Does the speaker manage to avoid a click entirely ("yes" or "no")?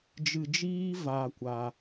yes